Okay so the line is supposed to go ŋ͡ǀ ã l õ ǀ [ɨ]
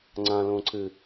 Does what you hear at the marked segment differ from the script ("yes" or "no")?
no